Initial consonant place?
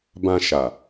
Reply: labial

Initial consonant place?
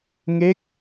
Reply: velar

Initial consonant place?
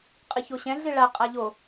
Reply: uvular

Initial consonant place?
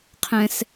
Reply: uvular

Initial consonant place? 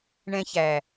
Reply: retroflex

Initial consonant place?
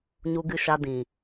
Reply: palatal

